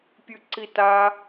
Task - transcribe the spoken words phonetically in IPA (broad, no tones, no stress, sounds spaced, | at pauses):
pʲ ʉ ǀ i t a